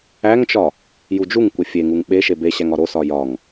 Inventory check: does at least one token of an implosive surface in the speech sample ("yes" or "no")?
yes